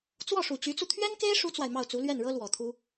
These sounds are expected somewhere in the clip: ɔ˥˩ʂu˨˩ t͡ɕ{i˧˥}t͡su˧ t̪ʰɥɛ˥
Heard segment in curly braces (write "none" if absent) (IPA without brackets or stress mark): y˧˥